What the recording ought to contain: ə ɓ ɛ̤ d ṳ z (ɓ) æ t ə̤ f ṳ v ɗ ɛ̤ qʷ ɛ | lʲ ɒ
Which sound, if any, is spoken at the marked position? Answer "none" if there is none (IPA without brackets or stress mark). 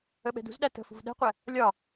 ɗ